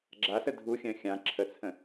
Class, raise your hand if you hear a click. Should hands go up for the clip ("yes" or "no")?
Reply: yes